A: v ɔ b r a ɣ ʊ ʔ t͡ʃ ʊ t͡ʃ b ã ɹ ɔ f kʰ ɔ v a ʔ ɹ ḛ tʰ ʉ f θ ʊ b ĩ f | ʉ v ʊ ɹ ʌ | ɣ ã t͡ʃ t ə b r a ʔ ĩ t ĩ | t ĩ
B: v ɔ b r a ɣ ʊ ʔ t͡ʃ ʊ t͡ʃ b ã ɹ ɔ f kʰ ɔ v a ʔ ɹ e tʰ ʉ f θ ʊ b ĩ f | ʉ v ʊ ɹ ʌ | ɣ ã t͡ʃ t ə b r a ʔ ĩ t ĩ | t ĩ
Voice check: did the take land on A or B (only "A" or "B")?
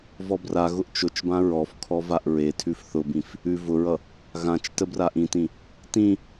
B